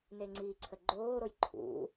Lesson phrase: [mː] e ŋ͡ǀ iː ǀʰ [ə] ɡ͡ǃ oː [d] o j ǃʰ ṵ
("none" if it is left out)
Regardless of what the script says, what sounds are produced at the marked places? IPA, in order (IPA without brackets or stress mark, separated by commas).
n, ə, ɾ